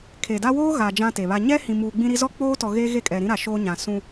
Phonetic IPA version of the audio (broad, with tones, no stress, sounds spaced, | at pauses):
kʰ e˨ d a˦ w oː˦ ɣ a˨ d͡ʒ ã˦ t e˨ β a˦ ɲ ɛ˦ h ĩ˨ m uː˨ ɡ͡b ĩ˦ ɾ i˦ z ɔ˦ k͡p oː˦ t ɔ˨ ɣ e˦ ɣ e˦˨ kʼ ɛ˨ ɾ ĩ˦ ɾ a˨ ʃ oː˦ ɲ ã˨ s ũ˦